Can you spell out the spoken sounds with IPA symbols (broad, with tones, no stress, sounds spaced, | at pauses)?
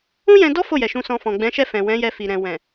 ũ˦ j ɛ̃˧ d ɔ˦ f o˦˨ j ɛ˨ ʃ ũ˧ s ɔ̃˧ f ɔ̃˨ ɡ͡b ɛ̃˨˦ ʃ ɛ˦˨ f ɛ̃˨ w ɛ̃˨˦ j ɛ˧ f i˨ ɾ ɛ̃˨ w ɛ̃˨